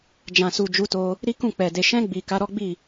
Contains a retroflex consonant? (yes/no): no